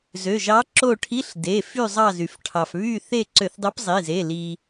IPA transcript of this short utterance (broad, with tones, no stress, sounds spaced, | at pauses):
z ø˩˧˩ ʒ ɑ˧˥ ǁ o˦˨ ʈʰ i˧˥˧ ɬ d e˩˧˩ f y˦˨ zˤ ɑ˦˨ z y˩ f ʈʰ ɑ˩ f β y˦˨ θ e˦˨ ǀ ø˧˩˧ θ dˤ ø˧˥ p zˤ i˩˧˩ z e˩˧˩ l i˩